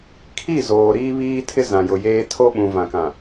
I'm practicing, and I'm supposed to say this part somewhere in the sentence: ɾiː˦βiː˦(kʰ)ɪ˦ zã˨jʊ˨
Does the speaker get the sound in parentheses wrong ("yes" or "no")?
yes